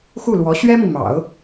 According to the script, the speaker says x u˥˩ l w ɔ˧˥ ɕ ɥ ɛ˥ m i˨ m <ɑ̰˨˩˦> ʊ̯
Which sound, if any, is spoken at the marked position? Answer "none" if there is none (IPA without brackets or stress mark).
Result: ɑ̰˨˩˦